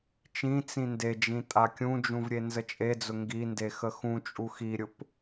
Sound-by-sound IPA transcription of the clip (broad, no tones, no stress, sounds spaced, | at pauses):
t͡ʃ ĩ t͡s ĩ n d e d͡ʒ ĩ tʼ a kʲ ũ d͡ʒ ũ v ɾʲ e n z ə t͡ʃʼ e d͡z ʊ ŋ ɡ i n d e x ə x ũ t͡ʃʼ u x i ɾʲ ʊ p